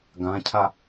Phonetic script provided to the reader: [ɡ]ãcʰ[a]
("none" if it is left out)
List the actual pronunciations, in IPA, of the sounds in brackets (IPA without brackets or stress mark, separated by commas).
ɡ, a